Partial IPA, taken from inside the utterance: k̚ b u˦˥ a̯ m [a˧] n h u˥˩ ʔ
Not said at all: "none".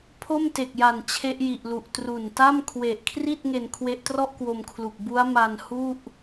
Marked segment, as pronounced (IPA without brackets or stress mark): a˧